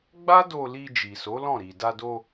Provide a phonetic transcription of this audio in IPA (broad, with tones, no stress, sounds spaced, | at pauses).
ɡ͡b a˦ d o˧ l i˧ d͡ʒ i˨ s o˨˦ l ɔ̃˦˨ ɾ i˨ d a˧ d o˧